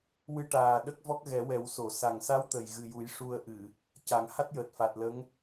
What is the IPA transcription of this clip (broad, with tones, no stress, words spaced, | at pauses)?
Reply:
wɨ˧ʈaː˨˩ ɗə˦˥k̚vɔ˦˥k̚ɣɛ˨˩˦wɛ˨˩˦w so˨˩˨sa˨˩ŋ sa˧˥w t̪ə˨˩jɣɨ˨˩ju˨˩˦j ʂu˧ə̯ ʔɨ˨˩˨ | ca˨˩˦ŋha˦˥t̚jəː˨˩t̚ fa˨˩t̚ lə˧˥ŋ